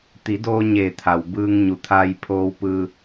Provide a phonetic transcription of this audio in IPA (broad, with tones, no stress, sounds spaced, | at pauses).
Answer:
t̪ i˩˧ d oː˧ ɲ eː˧˩ t̪ʰ a˩ w b ɯː˧ ŋ ɲ u˩ t̪ʰ a˧ j pʰ oː˧ w p ɯː˧